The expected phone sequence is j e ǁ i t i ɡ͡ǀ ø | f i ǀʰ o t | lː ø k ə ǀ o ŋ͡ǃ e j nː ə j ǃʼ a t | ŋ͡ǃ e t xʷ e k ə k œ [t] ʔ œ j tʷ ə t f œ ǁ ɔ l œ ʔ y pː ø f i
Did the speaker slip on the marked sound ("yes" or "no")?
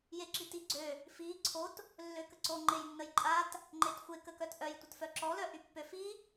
no